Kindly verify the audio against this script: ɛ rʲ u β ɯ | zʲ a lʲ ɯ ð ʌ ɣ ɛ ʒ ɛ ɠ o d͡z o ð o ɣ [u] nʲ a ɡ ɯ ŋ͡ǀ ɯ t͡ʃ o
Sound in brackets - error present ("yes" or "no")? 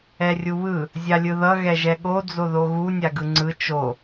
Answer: no